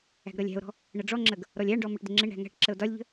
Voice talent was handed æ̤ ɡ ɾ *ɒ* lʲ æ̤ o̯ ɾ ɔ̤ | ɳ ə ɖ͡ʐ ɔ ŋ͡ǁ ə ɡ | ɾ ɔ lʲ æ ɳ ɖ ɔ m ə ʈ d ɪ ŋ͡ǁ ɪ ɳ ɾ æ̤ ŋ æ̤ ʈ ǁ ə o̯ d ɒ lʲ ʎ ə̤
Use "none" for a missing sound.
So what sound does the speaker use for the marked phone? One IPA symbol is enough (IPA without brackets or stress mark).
ʌ